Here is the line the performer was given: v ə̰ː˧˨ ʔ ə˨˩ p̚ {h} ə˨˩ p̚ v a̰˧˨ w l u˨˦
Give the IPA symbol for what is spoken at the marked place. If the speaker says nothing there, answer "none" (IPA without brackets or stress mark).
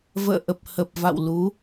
h